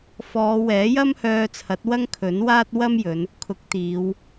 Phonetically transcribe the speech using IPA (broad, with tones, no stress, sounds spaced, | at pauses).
f ɔː˨˧ w ɛː˨˥ j ɐ˥ m h œː˧ t͡sʰ ɐ˨˥ t̚ w ɐ˥ ŋ kʰ ɵ˨˥ n w aː˥ t̚ w ɐ˥ m j ɵ˨˧ n | kʰ ʊ˨˥ k̚ t̪ iː˨˧ w